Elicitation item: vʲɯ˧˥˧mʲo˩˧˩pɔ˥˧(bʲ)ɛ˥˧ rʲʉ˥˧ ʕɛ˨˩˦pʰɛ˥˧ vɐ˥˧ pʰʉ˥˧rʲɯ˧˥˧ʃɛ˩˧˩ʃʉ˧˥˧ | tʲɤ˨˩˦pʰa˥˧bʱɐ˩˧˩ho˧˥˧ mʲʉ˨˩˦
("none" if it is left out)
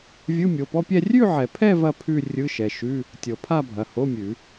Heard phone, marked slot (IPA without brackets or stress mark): pʲ